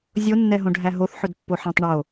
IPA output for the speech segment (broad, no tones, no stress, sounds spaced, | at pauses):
zʲ o nː ɛ ɦ õ ɖʱ æ ɦ o θ ħ ɵ d pː o ħ æ̃ tˤ ɳ o